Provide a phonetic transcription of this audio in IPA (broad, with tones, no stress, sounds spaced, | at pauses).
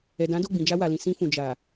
ɛ˨ d ã˨˦ d o˦˨ ɡ͡b ĩ˨ d͡ʒ a˧ w a˨ l ĩ˨ s ĩ˧ f ũ˨ d͡ʒ a˨